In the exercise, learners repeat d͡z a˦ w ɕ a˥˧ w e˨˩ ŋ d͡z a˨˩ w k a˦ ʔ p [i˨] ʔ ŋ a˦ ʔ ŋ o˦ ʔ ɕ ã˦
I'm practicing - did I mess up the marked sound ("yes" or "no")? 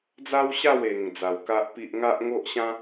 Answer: yes